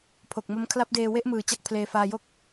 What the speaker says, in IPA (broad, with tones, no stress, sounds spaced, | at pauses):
pʰ o˨˩ k̚ m o˦˥ m kʰ l a˦˥ p̚ d eː˧ w e˥˩ ʔ m ɯː˨˩ t͡ɕ a˥˩ k̚ pʰ l eː˧ f aː˧ j o˥˩ k̚